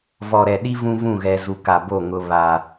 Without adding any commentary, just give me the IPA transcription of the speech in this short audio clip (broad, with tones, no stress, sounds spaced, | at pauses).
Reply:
v ɔ˨ ɾ ɛ˨ ɗ i˦ v ũ˦ v ũ˦˨ ɣ ɛ˨ z u˨ k a˨ b o˦˨ ŋ ʊ˦ β a˦